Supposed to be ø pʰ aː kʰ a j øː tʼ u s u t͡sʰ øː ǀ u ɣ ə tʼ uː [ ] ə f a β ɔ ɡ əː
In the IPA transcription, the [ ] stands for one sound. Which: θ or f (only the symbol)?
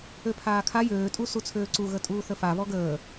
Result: θ